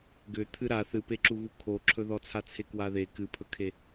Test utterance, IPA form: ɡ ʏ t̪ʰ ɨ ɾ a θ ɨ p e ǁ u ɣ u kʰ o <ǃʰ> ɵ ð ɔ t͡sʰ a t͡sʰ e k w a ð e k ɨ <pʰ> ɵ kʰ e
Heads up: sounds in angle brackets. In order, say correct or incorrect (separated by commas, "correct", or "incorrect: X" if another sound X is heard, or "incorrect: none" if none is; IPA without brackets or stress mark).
incorrect: ǁʰ, correct